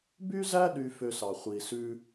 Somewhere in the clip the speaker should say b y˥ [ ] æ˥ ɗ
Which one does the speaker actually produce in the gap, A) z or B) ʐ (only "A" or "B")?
A